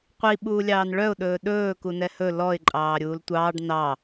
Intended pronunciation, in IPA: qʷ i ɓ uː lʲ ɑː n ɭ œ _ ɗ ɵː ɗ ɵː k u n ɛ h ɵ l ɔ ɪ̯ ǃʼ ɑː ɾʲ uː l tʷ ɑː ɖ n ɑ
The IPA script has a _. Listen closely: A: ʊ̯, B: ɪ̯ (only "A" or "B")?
A